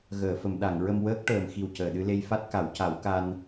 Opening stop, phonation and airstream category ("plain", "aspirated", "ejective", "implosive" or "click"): implosive